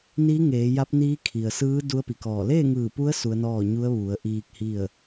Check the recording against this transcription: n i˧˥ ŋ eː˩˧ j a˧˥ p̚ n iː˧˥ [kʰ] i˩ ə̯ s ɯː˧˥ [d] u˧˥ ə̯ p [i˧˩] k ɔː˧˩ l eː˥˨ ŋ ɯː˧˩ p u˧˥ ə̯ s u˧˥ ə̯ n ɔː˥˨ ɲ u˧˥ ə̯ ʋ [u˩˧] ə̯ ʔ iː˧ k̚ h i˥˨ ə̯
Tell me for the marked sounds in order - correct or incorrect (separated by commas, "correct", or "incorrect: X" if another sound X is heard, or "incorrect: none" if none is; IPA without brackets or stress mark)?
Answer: correct, correct, incorrect: i˩, correct